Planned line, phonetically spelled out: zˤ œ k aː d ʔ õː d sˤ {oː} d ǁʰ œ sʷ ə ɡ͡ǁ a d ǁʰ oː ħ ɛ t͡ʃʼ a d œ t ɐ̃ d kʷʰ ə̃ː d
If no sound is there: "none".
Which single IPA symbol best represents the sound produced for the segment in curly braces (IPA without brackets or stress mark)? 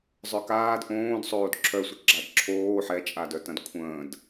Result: oː